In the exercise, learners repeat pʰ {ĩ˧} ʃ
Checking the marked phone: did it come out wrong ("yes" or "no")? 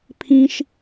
no